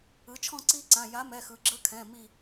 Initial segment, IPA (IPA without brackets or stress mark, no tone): ɯ